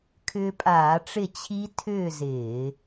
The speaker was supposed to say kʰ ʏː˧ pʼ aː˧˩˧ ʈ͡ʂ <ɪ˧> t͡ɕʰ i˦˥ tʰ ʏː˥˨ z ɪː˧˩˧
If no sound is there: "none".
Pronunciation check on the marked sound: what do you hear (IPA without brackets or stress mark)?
ɪ˥˨